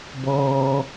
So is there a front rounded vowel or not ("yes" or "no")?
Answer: no